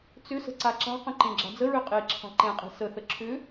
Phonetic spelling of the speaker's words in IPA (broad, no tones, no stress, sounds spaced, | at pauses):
t͡s ʏ s ə̤ ǀ a ǁ a̤ q ə̃ ǃ ẽ ɡ͡ǁ a̤ d͡z ə ɹ ø qʼ e ǁʰ a̤ ǃ ẽ qʼ e̤ s ə θ ə ǁʰ ʏ